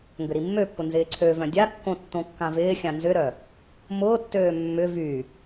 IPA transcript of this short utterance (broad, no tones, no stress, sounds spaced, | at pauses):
ŋ ɡ ʏ ɾ i mː ø pː ʊ n z ɪː ǀʰ ø v œ̃ dʲ a kː õ tː õ kː ã v ɪː xʲ ã n z ʏ ɾ œ | m ʊː tː øː mː ʏ v y